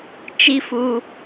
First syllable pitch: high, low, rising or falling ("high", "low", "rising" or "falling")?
high